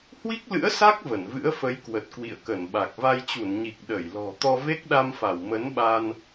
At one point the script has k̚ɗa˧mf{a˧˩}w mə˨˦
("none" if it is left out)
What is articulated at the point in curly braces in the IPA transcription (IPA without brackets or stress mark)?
a˧˩